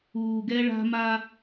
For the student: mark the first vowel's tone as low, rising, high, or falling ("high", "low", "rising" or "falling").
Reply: low